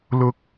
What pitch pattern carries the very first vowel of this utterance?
rising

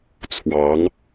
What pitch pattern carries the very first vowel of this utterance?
rising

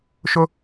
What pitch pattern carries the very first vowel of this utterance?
high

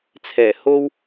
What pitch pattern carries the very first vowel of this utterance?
low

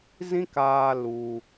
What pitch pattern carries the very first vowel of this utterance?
high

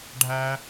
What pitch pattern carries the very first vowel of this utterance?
high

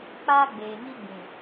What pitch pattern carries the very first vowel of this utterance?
high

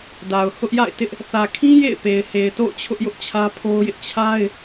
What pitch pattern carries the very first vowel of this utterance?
low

